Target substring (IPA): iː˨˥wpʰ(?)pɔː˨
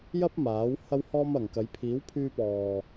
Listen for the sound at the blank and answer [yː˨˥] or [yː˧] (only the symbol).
yː˧